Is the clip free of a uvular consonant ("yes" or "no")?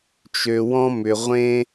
no